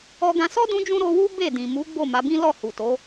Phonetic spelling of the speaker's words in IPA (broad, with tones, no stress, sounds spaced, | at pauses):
ɔ˧ ɡ ã˧ s ɔ˦ d ũ˧ d͡ʒ ũ˧ ɾ o˧ w u˦ b e˦˨ d ĩ˨ m u˨˦ ɡ͡b o˦˨ m a˨˦ b ĩ˦ l ɔ˦˨ h u˨ t o˨˦